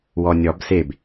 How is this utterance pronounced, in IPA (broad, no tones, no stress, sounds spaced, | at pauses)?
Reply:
w ɔ nʲ ɔ b s e b